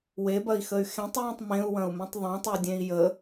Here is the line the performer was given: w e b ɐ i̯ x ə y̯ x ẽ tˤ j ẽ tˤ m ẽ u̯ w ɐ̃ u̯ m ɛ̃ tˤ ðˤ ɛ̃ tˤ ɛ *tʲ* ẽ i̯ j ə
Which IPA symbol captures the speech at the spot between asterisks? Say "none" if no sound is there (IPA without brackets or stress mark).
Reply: dʲ